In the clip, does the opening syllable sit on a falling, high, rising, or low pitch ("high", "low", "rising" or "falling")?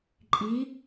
rising